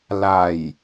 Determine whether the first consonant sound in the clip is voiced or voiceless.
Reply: voiced